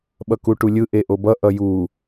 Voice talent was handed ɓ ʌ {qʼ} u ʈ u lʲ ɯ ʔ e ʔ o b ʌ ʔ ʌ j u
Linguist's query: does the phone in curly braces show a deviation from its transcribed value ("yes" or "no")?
yes